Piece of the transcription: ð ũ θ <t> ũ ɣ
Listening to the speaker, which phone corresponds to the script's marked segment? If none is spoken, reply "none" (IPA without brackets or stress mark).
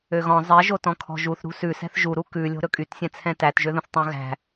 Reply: tˤ